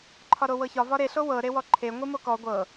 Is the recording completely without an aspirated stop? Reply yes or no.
no